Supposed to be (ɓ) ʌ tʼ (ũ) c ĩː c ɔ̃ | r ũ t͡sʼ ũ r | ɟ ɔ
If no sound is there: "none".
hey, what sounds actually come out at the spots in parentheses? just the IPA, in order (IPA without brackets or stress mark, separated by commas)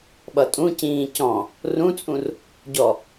ɓ, ũ